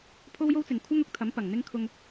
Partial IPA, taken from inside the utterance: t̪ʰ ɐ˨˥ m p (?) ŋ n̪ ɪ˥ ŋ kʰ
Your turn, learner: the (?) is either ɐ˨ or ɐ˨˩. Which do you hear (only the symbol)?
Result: ɐ˨˩